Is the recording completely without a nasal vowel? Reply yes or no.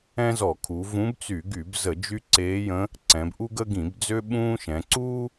no